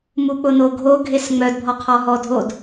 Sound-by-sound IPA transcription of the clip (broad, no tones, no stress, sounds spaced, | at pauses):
m u k͡p ʊ n o ɡʱ o ɡʱ e s ŋ͡m œ d bʱ ɔ qʰ ɔ ɦ ɔ dʱ o d